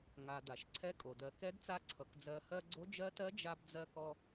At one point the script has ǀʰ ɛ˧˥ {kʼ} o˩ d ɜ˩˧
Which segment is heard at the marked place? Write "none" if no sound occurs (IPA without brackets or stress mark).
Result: kʼ